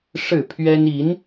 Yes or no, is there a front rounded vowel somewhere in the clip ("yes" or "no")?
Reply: no